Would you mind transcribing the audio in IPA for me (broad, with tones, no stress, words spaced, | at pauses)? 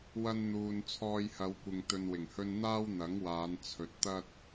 wɐ˧nn̪uː˨n t͡sʰɔː˧jhɐ˨˧wkʷɪ˨ŋ t̪ɵ˨nwɪ˨˩ŋhɵ˧n n̪aː˥w n̪ɐ˨˥ŋwaː˨˧n t͡sʰɵ˨t̚t̪ɐ˥t̚